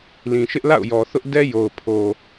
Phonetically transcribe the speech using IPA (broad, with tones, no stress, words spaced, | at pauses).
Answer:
lĩ˨ʃɪ˦ʔ la̰˦˨ʊ̯jɔ˨θʊ˦ʔ dɛ˦jo˨ʊ̯pʰo˨